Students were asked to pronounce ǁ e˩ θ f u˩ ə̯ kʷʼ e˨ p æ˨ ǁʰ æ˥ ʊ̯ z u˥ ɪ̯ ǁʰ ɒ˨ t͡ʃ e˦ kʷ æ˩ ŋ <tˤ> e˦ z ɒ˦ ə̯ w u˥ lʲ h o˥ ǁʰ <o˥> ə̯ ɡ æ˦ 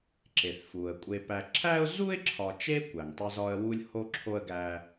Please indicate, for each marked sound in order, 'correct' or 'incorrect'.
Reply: correct, correct

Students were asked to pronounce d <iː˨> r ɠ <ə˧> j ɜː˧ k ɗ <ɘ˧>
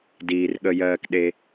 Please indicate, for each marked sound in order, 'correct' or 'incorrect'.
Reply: correct, correct, incorrect: e˧

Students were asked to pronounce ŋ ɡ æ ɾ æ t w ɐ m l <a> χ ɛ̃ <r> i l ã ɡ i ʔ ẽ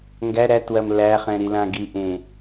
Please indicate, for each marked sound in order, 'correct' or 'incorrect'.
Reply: incorrect: æ, incorrect: ɾ

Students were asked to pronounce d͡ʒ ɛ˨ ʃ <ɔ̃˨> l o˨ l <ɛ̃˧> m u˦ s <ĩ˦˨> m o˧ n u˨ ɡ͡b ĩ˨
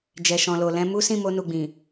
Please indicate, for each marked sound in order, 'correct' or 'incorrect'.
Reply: correct, correct, correct

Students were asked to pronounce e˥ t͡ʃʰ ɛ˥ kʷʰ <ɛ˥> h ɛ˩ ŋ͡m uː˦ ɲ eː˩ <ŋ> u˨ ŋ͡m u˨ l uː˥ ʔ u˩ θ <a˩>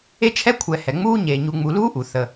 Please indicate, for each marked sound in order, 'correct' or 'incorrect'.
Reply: incorrect: ɛ˨, incorrect: ɲ, incorrect: ə˩

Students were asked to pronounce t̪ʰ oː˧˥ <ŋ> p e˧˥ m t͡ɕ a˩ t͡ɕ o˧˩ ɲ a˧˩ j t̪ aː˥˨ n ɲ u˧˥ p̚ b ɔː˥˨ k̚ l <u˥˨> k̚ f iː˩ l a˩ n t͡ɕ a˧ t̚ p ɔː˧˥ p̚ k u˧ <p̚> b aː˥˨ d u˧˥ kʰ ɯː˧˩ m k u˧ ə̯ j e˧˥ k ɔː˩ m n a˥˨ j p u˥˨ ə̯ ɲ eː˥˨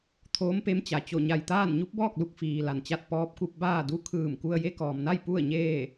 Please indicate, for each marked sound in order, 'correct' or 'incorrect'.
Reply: incorrect: m, correct, correct

